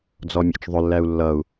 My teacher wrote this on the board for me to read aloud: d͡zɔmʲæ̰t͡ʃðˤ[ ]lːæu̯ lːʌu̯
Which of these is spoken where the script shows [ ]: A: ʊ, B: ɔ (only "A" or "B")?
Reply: A